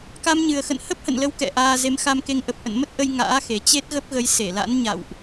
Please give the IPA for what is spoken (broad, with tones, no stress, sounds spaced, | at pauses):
k a˧ m ɲ ɨ˨˩ ə̯ x ə̰˧˨ n h ə˦˥ p̚ h ə̰˧˨ n l ə˨˦ w k ɛ̰˧˨ ʔ aː˧ z e˨˦ m x a˧ m k e˧ ŋ ʔ ə˨˩ p̚ ʔ ə̰˧˨ n m ə˦˥ t̚ ʔ ə˧ j ŋ a̰ː˧˥ x e˨˩ t͡ɕ e˦˥ t̚ ɣ ə˦˥ p̚ ɣ ə˨˦ j s e˧˩ l a̰˧˥ n ɲ a̰˧˨ w ʔ